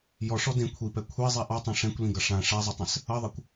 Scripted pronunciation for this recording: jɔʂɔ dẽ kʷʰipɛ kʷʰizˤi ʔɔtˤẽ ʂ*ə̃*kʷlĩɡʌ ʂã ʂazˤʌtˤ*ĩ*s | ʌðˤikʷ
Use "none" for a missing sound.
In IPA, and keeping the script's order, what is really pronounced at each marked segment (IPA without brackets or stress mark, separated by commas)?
ɛ̃, ẽ